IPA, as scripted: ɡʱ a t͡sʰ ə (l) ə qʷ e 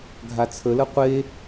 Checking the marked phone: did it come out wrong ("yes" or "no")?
no